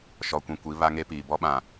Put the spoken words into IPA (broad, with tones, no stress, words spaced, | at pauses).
ʃɔ˨kʷĩ˨ kʷi˨˦ βa˦ŋe˦piː˨ bɔ˦ɓã˨